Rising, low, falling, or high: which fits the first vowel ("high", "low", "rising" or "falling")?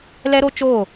high